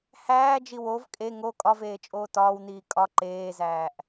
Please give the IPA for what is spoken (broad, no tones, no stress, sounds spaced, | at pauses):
h æː d͡ʒ i w o v kʼ e ŋ o kʼ ɒ v eː t͡ʃʼ oː t ɒː w n iː kʼ ɒ ǃ eː z æː ʔ